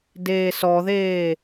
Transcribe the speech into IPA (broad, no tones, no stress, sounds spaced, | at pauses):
d eː s ɔ ð eː